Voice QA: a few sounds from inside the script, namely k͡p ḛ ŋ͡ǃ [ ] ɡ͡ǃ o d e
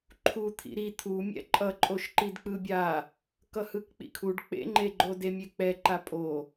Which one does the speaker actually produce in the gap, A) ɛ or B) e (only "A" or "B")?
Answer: B